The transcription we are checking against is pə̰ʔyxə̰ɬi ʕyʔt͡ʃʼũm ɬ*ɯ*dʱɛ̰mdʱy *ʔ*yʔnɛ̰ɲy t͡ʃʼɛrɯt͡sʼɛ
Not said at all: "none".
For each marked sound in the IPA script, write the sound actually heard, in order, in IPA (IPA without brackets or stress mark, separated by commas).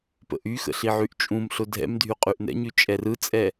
ʊ, qʼ